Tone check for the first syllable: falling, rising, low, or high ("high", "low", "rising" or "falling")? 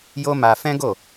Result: high